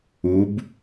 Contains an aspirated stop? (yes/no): no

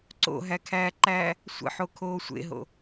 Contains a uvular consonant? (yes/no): no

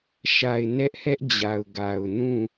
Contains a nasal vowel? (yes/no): yes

